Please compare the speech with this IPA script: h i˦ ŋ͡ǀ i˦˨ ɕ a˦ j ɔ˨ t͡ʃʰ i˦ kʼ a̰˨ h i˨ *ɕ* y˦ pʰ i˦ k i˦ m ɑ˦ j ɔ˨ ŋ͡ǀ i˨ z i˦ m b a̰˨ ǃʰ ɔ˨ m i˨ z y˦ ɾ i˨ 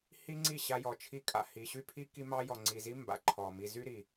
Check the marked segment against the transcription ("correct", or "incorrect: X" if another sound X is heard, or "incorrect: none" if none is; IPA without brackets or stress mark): correct